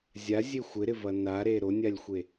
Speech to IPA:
zʲazʲe xʷɪɾɪvɐ naɾe ɾonʲalʲxʷe

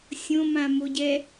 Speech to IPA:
sʲõmãmoɟɛ

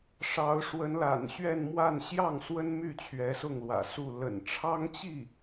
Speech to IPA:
ʂɑ˧˥ʊ̯ʂwə˧˥nla̰˨˩n ɕɥɛ˥˧nmwa˥˧n ɕjɑ˥˩ŋswə˥nmy˥˩ t͡ɕʰɥɛ˧˥sʊ˥˩ŋlwä̰˨˩ su˥˩ lə̰˨˩nʈ͡ʂʰɑ˥ŋt͡ɕi˥˩

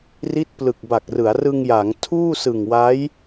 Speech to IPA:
ri˦˥t̚plɯ˨˩k̚ba˨˩k̚rɯ˩˦a̯ rɯ˧ŋja˩˦ŋ tʰuː˥˩sɯ˨˩ŋwa˦˥j

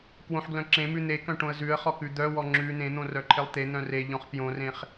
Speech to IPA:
kwõħɡlœ̃ ǁẽmʉ n̪ekœ̃ ʈõə̯zʉə̯χɔ kʉd̪œwɔ ŋ͡ǁʉ nẽn̪õ rœǃʰelˠt̪en̪œ̃ re ʎɔ̃χpjõrẽχ

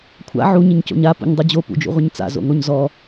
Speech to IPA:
kʷʰa̰ ʕuɲɪɲco̰ɲ apṵɲdˤu d͡ʑopṵd͡ʒṵʁʷɪɲ t͡sa̰zo̰ŋoɲ zɔ

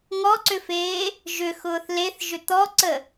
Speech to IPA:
ŋɔǀʏfeː | ʒʏxʊːθ leθʒʏ t̪ɔǀə

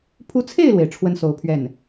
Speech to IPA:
pʰu˧˥t͡sʰe˥˩ɪ̯lwe˩ɪ̯ ʈ͡ʂʰwə˥n so˧˥ʊ̯pʰɥɛ˥˩n

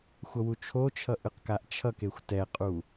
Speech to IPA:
xʷʌwut͡ʃʰot͡ʃʰʌ ʔɯqkaʔt͡ʃʰʌkexʷ tɛqʼu

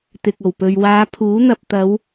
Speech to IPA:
t̪ɪ˨k̚o˨˩wpɵ˨ɥ waː˨˧pʰuː˨˥ n̪ɐ˨p̚t̪ɐ˨˧w

